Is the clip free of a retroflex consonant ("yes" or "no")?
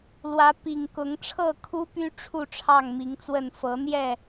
no